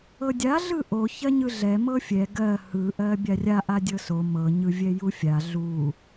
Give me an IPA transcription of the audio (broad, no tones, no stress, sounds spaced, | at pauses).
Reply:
ɤ dʲ a ɮ ɯ ʔ o ç ɜ ɲ ɯ ɮ ɛ m ɤ fʲ ɛ ɡ ɜ h ɯ ʔ ɜ bʲ a rʲ a ʔ a dʲ ɤ s o m ɤ ɲ ɯ vʲ ɛ j u fʲ a ɮ u